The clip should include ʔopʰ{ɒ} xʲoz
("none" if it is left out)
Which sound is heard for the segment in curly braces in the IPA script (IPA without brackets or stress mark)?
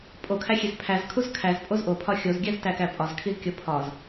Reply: ɒ